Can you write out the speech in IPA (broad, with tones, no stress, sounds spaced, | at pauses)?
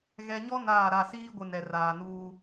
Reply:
ɣ ɛ˨ ɲ ɔ˦ n aː˦˨ ɾ a˦˨ s iː˦ ɡʷ ɪ˨ n ɛ˨ r aː˨ n uː˦